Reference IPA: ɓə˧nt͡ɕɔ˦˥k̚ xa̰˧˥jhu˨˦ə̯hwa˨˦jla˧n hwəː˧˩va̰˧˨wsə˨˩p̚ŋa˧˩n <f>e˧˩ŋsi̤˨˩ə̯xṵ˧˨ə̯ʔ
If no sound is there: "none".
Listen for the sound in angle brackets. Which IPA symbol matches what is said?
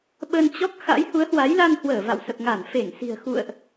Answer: f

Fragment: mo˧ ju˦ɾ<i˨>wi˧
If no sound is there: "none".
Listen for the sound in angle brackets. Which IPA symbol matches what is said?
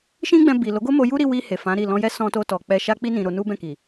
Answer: i˧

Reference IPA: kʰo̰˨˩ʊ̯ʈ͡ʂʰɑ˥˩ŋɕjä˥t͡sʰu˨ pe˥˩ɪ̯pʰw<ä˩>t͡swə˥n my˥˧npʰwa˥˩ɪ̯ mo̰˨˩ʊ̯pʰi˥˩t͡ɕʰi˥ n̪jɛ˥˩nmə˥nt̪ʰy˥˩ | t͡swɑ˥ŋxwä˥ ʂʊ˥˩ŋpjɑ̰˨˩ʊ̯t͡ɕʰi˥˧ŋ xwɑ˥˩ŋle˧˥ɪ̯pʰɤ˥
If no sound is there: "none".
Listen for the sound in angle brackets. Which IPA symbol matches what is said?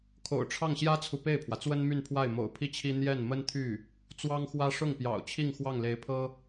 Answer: ä˩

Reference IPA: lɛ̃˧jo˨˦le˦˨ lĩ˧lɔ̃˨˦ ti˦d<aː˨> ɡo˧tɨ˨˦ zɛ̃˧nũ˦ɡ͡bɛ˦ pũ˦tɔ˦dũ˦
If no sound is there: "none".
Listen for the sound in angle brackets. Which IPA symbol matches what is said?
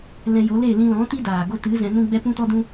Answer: aː˨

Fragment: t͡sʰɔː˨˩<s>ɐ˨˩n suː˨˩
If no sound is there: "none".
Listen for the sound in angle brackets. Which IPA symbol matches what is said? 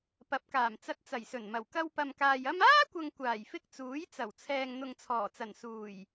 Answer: t͡s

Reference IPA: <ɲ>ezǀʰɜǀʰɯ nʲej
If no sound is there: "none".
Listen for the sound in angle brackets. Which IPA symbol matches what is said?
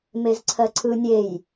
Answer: m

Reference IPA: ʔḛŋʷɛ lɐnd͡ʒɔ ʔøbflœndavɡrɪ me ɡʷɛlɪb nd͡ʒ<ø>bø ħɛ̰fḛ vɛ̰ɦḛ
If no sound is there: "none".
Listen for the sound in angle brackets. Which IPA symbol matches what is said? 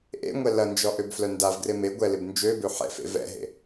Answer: ø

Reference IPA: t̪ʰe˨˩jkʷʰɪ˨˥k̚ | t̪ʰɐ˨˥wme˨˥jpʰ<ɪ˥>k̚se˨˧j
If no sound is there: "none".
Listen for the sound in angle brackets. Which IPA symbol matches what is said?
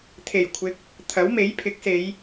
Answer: ɪ˨˥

